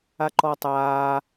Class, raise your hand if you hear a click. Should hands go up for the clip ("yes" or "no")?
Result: yes